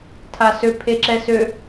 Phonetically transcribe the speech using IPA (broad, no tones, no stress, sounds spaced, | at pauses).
tʰ a s ø pʰ e ǁ ɛ s ø